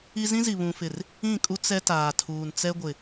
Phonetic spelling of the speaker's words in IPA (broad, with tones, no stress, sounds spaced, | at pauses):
i˦ z ĩ˦ z i˨ β ũ˨ f ɪ˨ r | ĩ˦˨ kʼ u˦ t͡s ɛ˦ t aː˨ tʰ uː˨ n t͡s ɛ˦ ɡʷ ɪ˨